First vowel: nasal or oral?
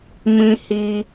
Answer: nasal